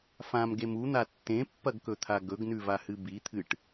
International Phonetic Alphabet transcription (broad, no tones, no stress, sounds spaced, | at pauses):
f ã m ɡ e m u n̪ a tː ẽ pː ɐ ɡ k ɵ t̪ʰ a ɡ ɵ ɡ n ʉ v a h ɨ b i t̪ʰ ɨ ʈ